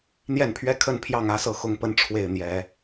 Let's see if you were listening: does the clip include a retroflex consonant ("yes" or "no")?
yes